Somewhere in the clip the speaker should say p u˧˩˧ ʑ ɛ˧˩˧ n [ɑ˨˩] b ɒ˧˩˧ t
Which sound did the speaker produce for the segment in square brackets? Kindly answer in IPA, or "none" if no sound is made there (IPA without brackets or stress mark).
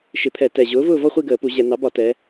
ɑ˩˥